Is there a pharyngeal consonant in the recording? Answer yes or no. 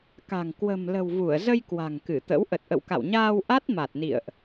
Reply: no